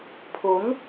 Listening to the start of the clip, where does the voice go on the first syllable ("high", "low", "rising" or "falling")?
rising